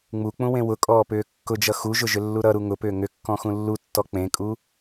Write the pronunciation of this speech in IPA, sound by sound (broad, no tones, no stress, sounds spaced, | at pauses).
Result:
ŋ͡m u k͡p ũ w ẽ w ʊ kʼ ɔː p ʏː kː ʊ d͡ʒ ʌ x u ʒ ʊ ʒ ʏ lː u ɾ ʌ ɾ u ŋ ʊ p ʏː ŋ ʏ kː ɔ̃ x ũ lː u tː ɔ k͡p ẽ kʼ u